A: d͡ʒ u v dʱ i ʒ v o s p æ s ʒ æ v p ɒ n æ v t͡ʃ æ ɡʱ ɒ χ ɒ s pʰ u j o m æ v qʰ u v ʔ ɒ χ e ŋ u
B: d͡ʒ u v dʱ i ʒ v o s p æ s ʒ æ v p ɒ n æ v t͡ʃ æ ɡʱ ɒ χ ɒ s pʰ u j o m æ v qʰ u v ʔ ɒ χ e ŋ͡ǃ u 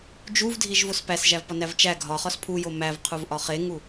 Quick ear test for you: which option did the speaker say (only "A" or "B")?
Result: A